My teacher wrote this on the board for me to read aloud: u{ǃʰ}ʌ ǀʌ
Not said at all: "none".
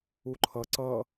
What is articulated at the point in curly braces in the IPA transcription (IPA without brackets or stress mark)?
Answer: ǃʰ